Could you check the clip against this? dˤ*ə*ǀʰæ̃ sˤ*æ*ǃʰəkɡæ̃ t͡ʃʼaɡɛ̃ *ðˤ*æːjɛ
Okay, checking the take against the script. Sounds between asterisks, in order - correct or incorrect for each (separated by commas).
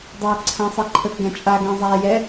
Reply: incorrect, incorrect, incorrect